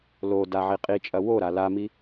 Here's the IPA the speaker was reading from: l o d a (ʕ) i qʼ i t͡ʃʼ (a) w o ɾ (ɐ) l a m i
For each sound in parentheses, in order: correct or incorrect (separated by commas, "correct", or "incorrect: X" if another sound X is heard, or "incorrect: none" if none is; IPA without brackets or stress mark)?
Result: correct, incorrect: ɐ, incorrect: a